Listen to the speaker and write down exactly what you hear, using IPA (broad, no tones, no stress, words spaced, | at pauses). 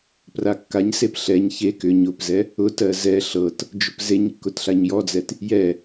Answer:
prakːaɲsep ɬɛɲ çe kʏɲ ʊpzɛ | ʊtɜ zɛ ɬɤt | d͡ʒʊpzeɲkːʊt ɬaɲjɔd͡zɛt | jɛ